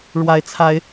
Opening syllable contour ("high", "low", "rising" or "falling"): rising